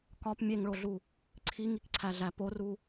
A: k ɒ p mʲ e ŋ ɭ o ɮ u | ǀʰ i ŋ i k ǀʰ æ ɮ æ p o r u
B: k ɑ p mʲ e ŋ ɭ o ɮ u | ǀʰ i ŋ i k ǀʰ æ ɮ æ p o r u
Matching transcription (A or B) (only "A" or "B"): A